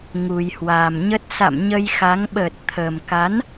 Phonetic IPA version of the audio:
ŋu˨˩jhwaː˨˩mɲə˦˥t̚ sa̰˧˨m ɲə˧jxa˨˦ŋ ɓəː˨˩t̚t̪ʰəː˨˩mka˨˦n

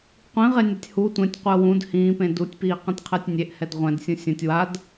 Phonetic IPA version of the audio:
qʷĩʁenʲatʲ hu tʷẽtʲqʷəː wũd hĩːpẽ dutʲpiːqɛ̃tʲqʰəːtʲ nʲeʔhɛd ʁʷɛ̃dsʲũ sʲə̃tʲ wad

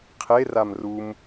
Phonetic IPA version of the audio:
qʰeram rum

